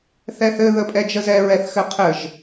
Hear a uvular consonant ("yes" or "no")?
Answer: yes